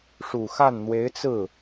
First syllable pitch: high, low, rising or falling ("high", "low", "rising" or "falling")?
low